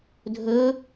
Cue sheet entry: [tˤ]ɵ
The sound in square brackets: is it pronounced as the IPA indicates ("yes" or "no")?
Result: no